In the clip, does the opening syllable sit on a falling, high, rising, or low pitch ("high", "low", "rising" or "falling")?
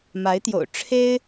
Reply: rising